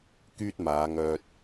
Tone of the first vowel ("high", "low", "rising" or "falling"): high